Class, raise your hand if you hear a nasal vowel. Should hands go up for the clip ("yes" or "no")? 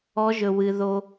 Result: no